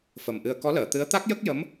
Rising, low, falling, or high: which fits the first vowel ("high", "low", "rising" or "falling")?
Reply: low